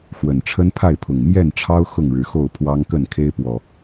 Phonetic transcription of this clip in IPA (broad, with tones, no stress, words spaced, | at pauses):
xwə˨˩nʈ͡ʂʰə˦npʰa˥˨ɪ̯pʰʊ˨˩ŋ mjɛ˥˨nʈ͡ʂʰɑ˦ʊ̯ xʊ˥˨ŋɻɻ̩˨˦xo˥˨ʊ̯ pʰwɑ˦ŋkə˥˨n kʰe˦ɪ̯pwɔ˨˩